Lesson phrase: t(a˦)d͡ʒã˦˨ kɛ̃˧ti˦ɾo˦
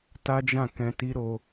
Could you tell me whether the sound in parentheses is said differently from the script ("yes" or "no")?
no